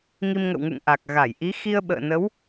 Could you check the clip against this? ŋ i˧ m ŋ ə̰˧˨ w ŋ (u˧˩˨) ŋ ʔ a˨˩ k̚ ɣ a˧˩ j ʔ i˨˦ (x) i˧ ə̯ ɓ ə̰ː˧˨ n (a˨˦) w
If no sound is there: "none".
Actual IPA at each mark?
ṵ˧˨, x, ə˨˦

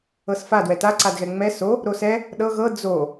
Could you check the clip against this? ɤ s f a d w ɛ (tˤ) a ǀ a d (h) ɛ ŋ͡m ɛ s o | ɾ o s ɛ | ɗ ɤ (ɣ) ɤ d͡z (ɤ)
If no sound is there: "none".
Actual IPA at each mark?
t, ɣ, ɣ, o

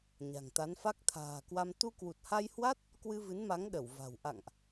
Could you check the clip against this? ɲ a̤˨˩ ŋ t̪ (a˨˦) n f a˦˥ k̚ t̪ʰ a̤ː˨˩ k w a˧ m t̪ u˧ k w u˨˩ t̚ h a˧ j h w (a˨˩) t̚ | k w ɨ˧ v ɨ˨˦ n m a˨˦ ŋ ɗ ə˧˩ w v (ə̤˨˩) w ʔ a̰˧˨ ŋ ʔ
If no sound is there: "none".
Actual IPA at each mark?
a˨˦, a˦˥, a̤˨˩

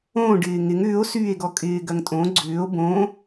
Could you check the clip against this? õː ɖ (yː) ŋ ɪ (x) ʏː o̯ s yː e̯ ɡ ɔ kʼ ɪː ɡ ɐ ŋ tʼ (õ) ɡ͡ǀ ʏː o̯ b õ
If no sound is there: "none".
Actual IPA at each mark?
ɪː, ŋ, õ

